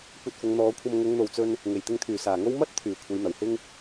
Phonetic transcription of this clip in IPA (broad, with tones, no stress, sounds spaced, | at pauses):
kʷ ɐ˧ t̚ f ʊ˨˧ ŋ n̪ ɔː˨˧ kʷʰ ɐ˧ m ŋ ʊ˨˧ ŋ n̪ o˨ w t͡s ɵ˧ n | ŋ e˨˩ j t̪ ɪ˧ ŋ t̪ʰ yː˨˩ s aː˨˩ ŋ o˥ w m ɐ˥ t̚ t̪ʰ yː˨˩ kʷʰ e˨˧ j n̪ ɐ˨˩ w h ɪ˥ ŋ